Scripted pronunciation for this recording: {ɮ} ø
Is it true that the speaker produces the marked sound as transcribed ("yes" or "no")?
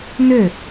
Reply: no